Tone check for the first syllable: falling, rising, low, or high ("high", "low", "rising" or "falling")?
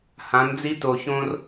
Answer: rising